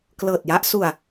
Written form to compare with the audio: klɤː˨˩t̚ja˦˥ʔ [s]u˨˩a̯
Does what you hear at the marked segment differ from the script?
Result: no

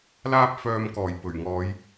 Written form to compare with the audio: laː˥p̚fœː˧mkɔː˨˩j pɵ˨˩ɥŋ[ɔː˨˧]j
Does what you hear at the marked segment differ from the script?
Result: no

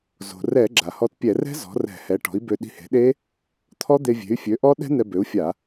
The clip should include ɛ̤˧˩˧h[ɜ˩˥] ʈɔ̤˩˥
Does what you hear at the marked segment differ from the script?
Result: yes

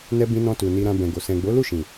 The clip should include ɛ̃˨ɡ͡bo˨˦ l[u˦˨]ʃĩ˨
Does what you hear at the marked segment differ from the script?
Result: no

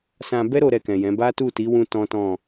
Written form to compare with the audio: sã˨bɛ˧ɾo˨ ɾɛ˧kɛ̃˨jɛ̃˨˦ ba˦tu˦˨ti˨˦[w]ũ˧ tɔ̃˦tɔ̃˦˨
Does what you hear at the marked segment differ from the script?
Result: no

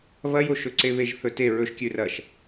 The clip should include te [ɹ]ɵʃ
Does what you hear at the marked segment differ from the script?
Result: no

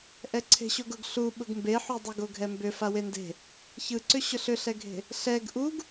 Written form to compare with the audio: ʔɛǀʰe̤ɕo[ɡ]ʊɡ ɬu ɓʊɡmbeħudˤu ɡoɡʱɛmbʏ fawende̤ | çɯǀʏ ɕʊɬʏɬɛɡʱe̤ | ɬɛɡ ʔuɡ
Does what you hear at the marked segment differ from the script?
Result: no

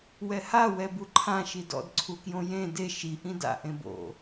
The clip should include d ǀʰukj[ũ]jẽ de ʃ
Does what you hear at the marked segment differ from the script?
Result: yes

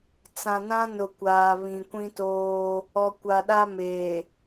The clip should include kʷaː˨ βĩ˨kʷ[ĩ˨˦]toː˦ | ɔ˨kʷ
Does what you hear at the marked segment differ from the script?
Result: yes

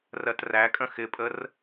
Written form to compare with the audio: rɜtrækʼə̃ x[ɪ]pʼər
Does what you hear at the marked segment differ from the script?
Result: no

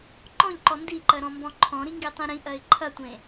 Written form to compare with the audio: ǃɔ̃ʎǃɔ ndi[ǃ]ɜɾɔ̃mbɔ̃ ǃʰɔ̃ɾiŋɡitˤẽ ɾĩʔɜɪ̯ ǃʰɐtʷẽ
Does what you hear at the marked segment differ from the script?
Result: no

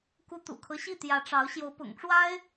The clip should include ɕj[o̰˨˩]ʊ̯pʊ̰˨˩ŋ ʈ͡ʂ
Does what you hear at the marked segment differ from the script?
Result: yes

